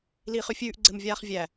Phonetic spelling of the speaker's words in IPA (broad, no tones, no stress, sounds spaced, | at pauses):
l iː χ ʉ fʲ ʉː ʔ ɡ͡ǀ ɘ m vʲ aː χ vʲ æ